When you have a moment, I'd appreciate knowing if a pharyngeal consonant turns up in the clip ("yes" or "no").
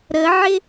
yes